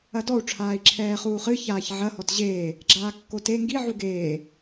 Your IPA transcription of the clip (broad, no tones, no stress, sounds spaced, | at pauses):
ɐ d ɔ u̯ ʈ͡ʂʰ aː i̯ ǁʰ ɛː χ uː χ ɨ ç aː ç ʕ ɐ h ɔ t ʑ eː | ɡ͡ǁ aː kː o t e ŋ ɡ i ʕ u ɡ eː